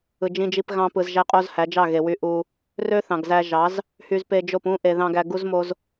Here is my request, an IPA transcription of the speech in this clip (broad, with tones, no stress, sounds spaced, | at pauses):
ɯ˨ d͡ʒ ĩ˧ d͡ʒ i˧ p ɣ ɑ̃˧ p ɯ˨ z ʒ æ˦ qʼ o˦ z h æ˨˦ d͡ʒ ɑ˦˨ ɣ e˨ w y˧ ʔ u˧ | r ø˦ θ ɑ̃˨ ɡ z æ˧ ʒ ɑ˨˦ z | h y˧ z p e˧ d͡ʒ o˦˨ p ũ˦ ʔ e˨ ð ɑ̃˧ ɡ æ˧ ɡ u˦ z m o˦ z